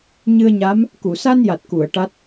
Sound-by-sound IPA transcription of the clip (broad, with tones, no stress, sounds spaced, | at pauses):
ɲ ɨ˧ ə̯ ɲ a˧˥ m | k u˨˩˨ s a˧ n j a˨˩ t̚ k u˨˩˨ ə̯ ʈ a˦˥ t̚